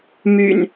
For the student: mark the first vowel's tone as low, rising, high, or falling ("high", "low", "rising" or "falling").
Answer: low